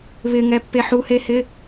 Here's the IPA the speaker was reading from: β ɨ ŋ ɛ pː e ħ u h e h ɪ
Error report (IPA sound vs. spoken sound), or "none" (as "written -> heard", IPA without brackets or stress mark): ɨ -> ɪ